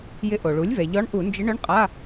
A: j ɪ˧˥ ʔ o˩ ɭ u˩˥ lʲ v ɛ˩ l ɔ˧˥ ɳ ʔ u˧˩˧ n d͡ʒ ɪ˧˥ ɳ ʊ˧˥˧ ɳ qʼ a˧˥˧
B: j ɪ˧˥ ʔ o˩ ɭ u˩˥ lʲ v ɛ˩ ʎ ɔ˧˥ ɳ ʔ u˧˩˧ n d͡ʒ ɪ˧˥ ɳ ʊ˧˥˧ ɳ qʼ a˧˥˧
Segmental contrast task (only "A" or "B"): B